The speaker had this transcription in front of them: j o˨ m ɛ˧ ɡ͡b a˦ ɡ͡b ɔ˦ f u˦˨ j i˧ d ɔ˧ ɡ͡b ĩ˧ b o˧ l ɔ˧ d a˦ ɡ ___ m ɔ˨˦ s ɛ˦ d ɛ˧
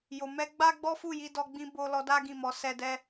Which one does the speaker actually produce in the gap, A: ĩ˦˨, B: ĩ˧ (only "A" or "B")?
A